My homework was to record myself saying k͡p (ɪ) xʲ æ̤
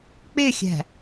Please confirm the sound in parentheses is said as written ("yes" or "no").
yes